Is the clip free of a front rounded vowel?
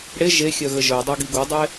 no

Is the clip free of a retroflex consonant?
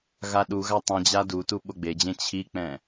yes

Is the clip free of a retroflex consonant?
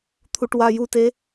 no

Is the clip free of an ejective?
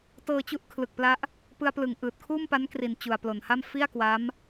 yes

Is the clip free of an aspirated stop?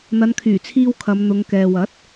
no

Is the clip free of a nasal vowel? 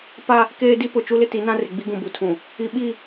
no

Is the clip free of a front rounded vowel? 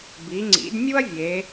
yes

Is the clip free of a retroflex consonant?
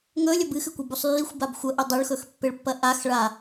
no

